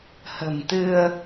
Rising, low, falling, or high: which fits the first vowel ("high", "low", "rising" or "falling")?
low